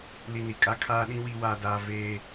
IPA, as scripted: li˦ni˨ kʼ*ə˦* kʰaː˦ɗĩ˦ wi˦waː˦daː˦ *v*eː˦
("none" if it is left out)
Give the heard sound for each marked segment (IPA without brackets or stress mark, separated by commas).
a˦, v